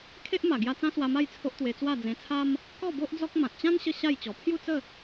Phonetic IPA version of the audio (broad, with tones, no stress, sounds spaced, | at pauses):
kʰ e˦ ʔ m a˨˩ ɡ j a˧ t͡s ã˦ s w a˧ m a˥˧ j t͡sʰ o˦ ʔ t̪ w e˧ t͡s w a˥˧ d͡z ẽ˧ t͡sʰ a˦ m | k ɔ˥˧ b o˦ ʔ d͡z ɔ˦ k̚ m ã˨ t̚ t͡ɕ ã˦ n ɕ ə˥˧ ɕ a˥˧ j t͡ɕ ɔ˨˩ pʰ j u˥˧ t͡s ə˥˧